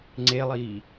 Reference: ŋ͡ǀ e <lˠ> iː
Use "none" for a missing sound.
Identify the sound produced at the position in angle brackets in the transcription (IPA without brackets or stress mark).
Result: lˠ